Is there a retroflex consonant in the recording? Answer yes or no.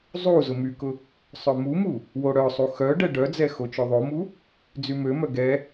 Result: yes